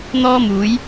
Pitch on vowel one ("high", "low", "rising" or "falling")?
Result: high